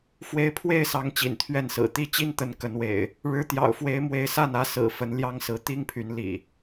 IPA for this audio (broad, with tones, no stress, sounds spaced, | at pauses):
f w e˨˦ ɪ̯ pʰ w e˥˨ ɪ̯ s ɑ˨˦ ŋ t͡ɕ ḭ˨˩ n t̪ʰ ɥ ɛ˥˨ n s ɹ̩˨˩ t̪ i˦ t͡ɕ i˦ n t̪ ə˨˦ n k ə˨˦ n w ḛ˨˩ ɪ̯ | ɻ ɻ̩˨˦ t̪ j ɑ̰˨˩ ʊ̯ f w e˨˦ ɪ̯ m w e˨˦ ɪ̯ s a˥˨ n ä˨˦ s ɹ̩˨˩ f ə˨˦ n l j ɑ˦ ŋ s ɹ̩˨˦ t̪ i˦ ŋ pʰ y˨˦ n l ḭ˨˩